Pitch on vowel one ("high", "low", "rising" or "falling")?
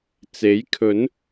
rising